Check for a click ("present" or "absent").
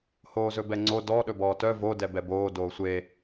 present